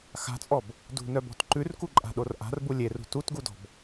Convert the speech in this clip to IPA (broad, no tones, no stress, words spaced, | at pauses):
xa̤t͡sʼɔb | dṳnœbɔ̤t ǃʉrkuǃʼa̤ɗor ʔa̤rbu lʲerṳ tutɡudɔ̤b